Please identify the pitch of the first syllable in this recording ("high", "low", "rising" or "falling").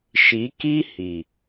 rising